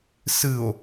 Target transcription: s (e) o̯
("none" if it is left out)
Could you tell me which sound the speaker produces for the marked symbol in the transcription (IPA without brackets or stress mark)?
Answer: ɨ